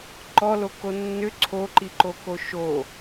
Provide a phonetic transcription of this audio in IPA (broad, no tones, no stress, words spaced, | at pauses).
ǃɔloko nːʏ ǀʰoǃiǃoko ʃo